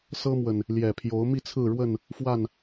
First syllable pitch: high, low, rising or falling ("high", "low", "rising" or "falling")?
high